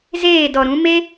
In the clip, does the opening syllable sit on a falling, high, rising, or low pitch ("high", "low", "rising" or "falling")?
falling